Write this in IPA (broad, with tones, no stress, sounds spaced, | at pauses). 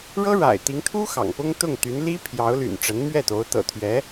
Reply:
ɻ ɤ˥ ɻ a̰˨˩ ɪ̯ t̪ i˧˥ ŋ t̪ʰ u˥ x ɑ̰˨˩ ŋ p ʊ˥ ŋ t̪ ʊ˥˩ ŋ t̪ y˧˥ n l i˥ pʰ j ɑ˧˥ ʊ̯ l y̰˨˩ n ʈ͡ʂ ə˧˥ n m ɥ ɛ˥˩ t̪ o˧˥ ʊ̯ t̪ ɤ̰˨˩ t̪ʰ ɥ ɛ˧˥